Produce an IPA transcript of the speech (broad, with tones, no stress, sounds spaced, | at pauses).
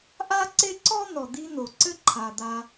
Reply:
ʔ a˦ ǀ e˦ ǀ ɔ˦ n̪ ɔ˨ d̪ i˦ n̪ o˩ ǀ ɘ˦ ǃʰ a˩ d̪ a˨